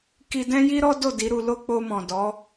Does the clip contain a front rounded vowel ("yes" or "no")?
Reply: no